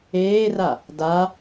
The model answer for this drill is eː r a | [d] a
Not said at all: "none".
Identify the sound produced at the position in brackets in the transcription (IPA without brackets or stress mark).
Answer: d